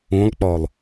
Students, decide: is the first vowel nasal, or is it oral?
nasal